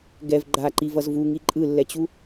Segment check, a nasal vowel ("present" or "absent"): absent